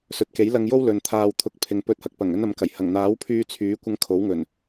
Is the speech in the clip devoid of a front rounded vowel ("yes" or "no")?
no